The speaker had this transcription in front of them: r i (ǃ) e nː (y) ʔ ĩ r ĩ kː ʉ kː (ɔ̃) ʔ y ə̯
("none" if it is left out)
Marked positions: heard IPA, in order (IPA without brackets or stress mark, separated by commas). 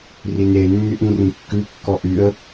n, y, ɔ